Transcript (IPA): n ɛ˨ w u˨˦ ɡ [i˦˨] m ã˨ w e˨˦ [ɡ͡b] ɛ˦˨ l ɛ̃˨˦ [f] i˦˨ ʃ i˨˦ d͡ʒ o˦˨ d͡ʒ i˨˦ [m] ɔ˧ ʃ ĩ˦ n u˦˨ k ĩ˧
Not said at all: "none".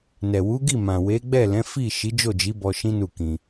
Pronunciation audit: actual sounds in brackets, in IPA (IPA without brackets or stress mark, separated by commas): i˦˨, ɡ͡b, f, b